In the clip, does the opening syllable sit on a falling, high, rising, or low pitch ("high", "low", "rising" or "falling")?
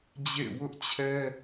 falling